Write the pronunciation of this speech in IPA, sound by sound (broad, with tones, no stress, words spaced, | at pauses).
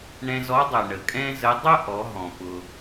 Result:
ɳɛ̃˧zɔ˧˥dˤœ˩ ɳə˩kʼɛ̃˥zə˧˥ dˤʊ˥ʔɔ˩˧ɦɔ̃˩ pʊ˩